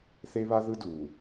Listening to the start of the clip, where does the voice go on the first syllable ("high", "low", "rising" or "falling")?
high